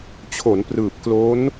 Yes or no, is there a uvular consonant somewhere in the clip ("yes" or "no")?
no